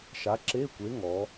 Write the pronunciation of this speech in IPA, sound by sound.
ʃ a˨˥ ǁ e˧˥˧ kʷ e˨˥ ŋ ɔ˩˧

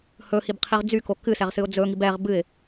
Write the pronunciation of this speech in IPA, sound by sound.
h ɵ h i b qʰ i ʁ d͡z y k o k ɨ s ɛ ʁ s ɨ ʊ̯ d͡z ɵ ŋ i b ɛ ʁ b ɨ ɪ̯

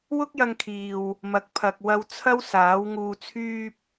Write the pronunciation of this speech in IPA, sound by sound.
w ʊ˥ k̚ j ɐ˧ ŋ kʰ iː˨ w | m ɐ˨˥ k̚ pʰ ɐ˨ k̚ w ɐ˧ w t͡sʰ ɐ˥ w s aː˨˥ w ŋ uː˨ t͡sʰ yː˧ p̚

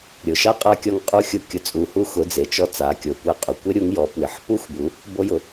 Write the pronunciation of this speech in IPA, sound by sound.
ɾʲ ʊ˩ ʃ a˥ qʼ a˧˥ kʲ ɔ˧ ŋ qʼ u˧ xʲ ʊ˧ kʲ ʊ˩ t͡sʼ u˩ h u˧ x ʊ˩˧ d͡z e˩ t͡ʃ ɔ˧˥ t͡s a˩˧ kʲ o˩ kʷ ɛ˧ qʼ u˩ kʷ ɪ˥ ɾʲ u˧˥ ŋ j ɔ˩˧ p w ɪ˩˧ ħ p u˥ xʷ b u˩˧ | b o˧ j ʊ˩

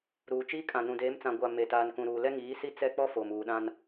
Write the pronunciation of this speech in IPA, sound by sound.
ɾ uː˨ t͡ʃ iː˦ kʼ ã˨ n ũ˨ d eː˨˦ m t͡s ã˨ ɡʷ a˨ m e˨ t aː˨ n k ũ˨ ɾ uː˨ l ɛ˦ ŋ iː˨˦ s i˦ t͡s ɛ˦˨ k͡p ɔ˦ f oː˨ m uː˨ ɗ ã˦ n

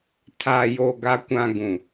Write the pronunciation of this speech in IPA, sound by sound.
tʰ aː˨ j o˨ ɡ a˨ kʷ ã˨ ɡ ũ˨

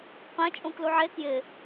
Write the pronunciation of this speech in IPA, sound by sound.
q ɛ̃ t͡ʃʼ ũ k l u ʕ e k j ɪ

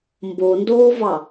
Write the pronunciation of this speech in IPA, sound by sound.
m b o n d oː v ɑ

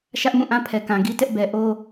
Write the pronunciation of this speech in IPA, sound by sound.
ʃ ä˦ ʔ m ũ˦˨ ʔ ã˦ pʰ ɛ˨ k ã˨ ɡ i˦ t ɛ˦ ʔ b ɛ˨ ʔ o˦

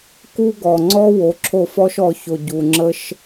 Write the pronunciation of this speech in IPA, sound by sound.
k u˦ ɡ ɔ˨ ŋ͡ǀ ɔ˦ w o˨˦ ǁʰ o˦˨ f ɔ˦ ʃ ɔ˨ ç o˨ ɟ u˨ ŋ͡ǁ ə˦ ʃ

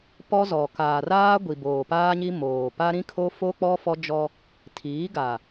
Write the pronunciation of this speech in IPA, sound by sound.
p ɔ˦ z ɔ˨ k aː˨ r aː˦ ɡʷ i˨ b oː˨ p aː˦ ɲ i˦ m oː˨ p a˦ ɾ ĩ˦ kʰ o˦ f o˦ k͡p ɔ˦ f ɔ˦ d͡ʒ ɔ˦ | tʰ iː˨˦ ɡ a˨

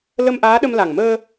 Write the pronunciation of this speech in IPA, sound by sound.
l ə˧ m ʔ aː˧˥ ɗ ə˧ m l a˨˩ ŋ m əː˧

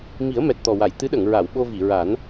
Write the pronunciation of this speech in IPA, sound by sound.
m i˨˩˦ ə̯ m ɛ˨˩ t̚ t̪ ɔ˨˩ w a˨˩˨ j t̪ ɨ˧˥ ɗ ə˨˩˨ ŋ ɹ a˨˩˨ w ɓ o˧ v i˨˩˨ ɹ a˨˩˦ n

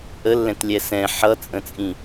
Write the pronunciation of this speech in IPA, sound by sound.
ʔ ə lː ɛ̃ t lʲ ɛ s ɛ̃ ħ ʌ t͡sʼ ə̃ t͡sʼ ĩ

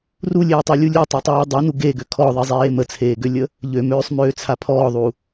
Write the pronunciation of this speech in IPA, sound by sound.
r u lʲ eː tˤ ɛ lʲ u lʲ u tˤ ɛ tˤ eː dˤ ɛ n u ɡ e ɡ ø kʰ ɔ ðˤ i zˤ eː m ə t͡sʰ eː ɡ ø lʲ ə | ʎ ø m øː sˤ m øː t͡sʰ a pʰ ɔː ðˤ u

